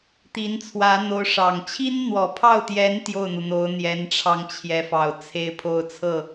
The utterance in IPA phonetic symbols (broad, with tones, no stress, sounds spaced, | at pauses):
t̪ i˧˥ n t͡sʰ w ä˧˥ n̪ o˧˥ ʊ̯ ʂ ɑ˨˩ ŋ t͡ɕʰ i˥ n n̪ w ɔ˨˩ pʰ ɑ˥˩ ʊ̯ t̪ j ɛ˧˥ n t̪ j o˥˩ ʊ̯ n̪ u˩ n̪ o˧˥ ʊ̯ n̪ j ɛ˧˥ n ʈ͡ʂʰ ɑ˧ ŋ t͡ɕʰ j ɛ˧˥ f ɑ˨˩ ʊ̯ t͡sʰ e˥˧ ɪ̯ pʰ o˥˧ ʊ̯ t͡sʰ ɤ˥˩